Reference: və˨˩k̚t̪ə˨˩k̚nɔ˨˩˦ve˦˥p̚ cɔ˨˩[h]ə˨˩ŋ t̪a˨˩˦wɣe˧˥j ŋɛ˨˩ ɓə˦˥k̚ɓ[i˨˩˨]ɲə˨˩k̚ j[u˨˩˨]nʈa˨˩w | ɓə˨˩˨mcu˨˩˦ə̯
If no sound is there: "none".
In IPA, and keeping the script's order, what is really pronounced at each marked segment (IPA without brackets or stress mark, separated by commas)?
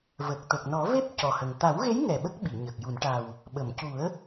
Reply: h, i˨˩˨, u˨˩˨